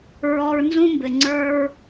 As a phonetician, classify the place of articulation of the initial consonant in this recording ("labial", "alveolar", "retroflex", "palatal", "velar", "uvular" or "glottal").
alveolar